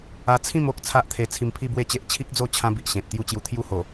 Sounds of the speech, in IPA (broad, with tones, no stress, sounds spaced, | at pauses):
a˧ t͡sʰ ĩ˥˧ m o˦ k̚ t͡sʰ a˦ ʔ t̪ʰ e˧ t͡sʰ i˧ m pʰ i˥˧ b w e˥˧ t͡ɕ e˦ ʔ t͡ɕʰ i˦ k̚ d͡z o˥˧ t͡ɕʰ ã˦ b i˨ ʔ ɕ ẽ˨ t̚ t̪ j u˥˧ t͡ɕ j u˧ t̪ʰ j u˥˧ h o˨˩